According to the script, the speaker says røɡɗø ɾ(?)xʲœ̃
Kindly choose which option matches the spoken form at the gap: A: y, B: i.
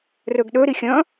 B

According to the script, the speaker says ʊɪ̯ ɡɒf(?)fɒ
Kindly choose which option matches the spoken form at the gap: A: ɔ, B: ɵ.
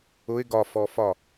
A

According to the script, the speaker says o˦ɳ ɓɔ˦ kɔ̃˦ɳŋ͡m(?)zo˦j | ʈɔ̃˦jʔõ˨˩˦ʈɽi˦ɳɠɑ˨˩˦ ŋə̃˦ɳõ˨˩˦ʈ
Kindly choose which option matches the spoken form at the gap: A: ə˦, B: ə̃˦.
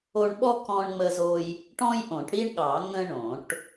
A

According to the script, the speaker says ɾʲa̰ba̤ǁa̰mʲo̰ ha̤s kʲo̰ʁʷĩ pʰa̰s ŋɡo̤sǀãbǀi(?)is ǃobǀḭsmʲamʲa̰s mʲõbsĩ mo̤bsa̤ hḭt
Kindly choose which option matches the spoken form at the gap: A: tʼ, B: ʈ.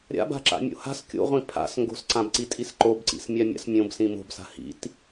A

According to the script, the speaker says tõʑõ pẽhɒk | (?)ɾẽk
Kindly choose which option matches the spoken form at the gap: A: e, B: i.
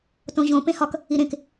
B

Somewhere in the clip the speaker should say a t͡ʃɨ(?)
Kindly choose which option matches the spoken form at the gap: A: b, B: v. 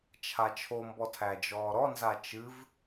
B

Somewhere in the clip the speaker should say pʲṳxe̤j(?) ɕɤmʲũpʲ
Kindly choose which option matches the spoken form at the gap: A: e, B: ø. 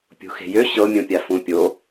B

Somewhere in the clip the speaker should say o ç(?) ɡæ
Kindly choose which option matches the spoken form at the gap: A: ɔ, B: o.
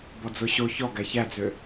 A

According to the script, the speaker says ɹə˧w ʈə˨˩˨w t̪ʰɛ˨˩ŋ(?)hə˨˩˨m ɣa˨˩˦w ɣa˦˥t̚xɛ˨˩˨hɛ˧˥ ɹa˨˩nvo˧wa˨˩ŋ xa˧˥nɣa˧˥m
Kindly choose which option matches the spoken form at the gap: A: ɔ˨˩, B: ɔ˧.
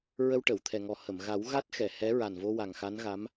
A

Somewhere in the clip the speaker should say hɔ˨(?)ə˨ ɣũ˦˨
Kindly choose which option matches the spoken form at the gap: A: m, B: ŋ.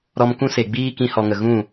B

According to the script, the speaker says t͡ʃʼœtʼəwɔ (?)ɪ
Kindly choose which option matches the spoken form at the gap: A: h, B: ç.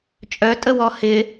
A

